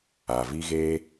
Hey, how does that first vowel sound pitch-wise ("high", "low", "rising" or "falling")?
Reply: low